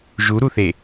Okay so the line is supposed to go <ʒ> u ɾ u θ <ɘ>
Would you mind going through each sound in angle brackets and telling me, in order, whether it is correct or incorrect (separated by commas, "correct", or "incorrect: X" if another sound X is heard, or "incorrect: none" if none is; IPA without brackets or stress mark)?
correct, incorrect: e